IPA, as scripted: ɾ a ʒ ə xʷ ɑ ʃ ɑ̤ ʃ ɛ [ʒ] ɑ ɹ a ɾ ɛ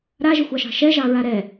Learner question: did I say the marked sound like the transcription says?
yes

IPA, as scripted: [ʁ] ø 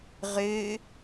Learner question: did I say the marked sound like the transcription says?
yes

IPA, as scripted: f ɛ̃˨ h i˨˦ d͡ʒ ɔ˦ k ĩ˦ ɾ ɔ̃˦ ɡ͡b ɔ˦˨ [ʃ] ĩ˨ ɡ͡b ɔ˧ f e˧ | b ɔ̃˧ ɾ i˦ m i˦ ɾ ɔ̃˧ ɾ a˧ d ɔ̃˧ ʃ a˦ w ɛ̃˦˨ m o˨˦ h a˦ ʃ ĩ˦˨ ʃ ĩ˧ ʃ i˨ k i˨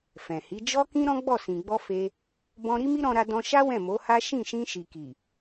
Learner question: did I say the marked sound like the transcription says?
no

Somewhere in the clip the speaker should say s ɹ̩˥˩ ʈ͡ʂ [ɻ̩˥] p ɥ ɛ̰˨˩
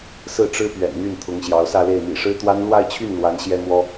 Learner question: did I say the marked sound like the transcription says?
yes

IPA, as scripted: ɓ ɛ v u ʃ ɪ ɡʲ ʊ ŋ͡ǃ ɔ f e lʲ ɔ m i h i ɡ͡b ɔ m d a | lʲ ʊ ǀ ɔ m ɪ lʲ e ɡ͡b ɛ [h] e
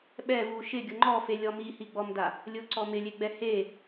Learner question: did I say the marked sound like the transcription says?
yes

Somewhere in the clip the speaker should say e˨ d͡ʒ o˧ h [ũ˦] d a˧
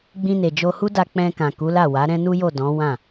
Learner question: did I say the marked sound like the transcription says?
no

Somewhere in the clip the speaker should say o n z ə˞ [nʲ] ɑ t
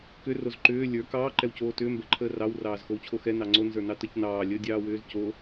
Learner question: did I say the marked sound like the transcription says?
no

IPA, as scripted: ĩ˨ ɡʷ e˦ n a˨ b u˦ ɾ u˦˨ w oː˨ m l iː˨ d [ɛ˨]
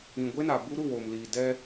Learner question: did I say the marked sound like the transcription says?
no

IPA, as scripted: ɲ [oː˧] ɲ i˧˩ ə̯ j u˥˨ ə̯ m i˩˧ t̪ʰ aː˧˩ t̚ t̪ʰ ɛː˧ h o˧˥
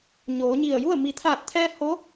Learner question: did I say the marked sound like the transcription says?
no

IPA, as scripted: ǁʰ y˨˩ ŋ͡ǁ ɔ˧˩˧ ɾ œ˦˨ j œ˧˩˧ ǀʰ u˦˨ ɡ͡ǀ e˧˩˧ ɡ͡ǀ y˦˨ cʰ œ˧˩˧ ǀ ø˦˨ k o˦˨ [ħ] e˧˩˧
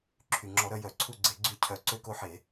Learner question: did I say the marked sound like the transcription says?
yes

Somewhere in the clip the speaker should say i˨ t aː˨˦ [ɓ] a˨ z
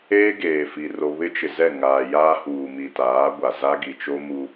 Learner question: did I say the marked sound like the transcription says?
no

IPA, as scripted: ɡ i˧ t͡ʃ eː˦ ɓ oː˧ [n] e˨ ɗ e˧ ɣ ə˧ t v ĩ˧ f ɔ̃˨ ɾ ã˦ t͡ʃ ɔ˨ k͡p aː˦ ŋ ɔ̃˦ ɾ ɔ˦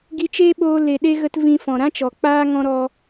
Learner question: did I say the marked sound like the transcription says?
no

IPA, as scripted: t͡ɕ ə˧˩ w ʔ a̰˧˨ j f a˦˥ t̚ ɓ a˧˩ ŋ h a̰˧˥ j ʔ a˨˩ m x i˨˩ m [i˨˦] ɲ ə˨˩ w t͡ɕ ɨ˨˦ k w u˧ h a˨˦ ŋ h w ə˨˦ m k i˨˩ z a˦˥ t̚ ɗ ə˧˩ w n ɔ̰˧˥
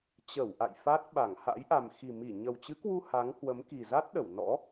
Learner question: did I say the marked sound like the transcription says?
no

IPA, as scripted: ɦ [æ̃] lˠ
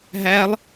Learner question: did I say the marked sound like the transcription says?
no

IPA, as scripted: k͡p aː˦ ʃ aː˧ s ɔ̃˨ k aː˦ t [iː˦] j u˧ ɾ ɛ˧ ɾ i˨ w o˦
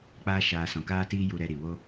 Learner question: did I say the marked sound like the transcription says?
yes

